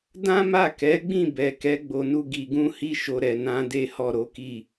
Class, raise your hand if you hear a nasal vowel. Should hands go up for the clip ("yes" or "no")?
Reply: yes